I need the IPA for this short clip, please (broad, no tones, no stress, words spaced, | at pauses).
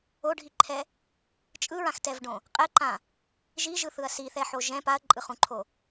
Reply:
oɖʱiǃʰɛ | t͡ʃʼɯɹãxtɛvɖõ | qʼɛǃã | ʒiʒɯθɯɐ̯ siθɛħo ʒɛ̃ paɐ̯ǃʼɯχũǃʰo